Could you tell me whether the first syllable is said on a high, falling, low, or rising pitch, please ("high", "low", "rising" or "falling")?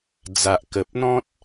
low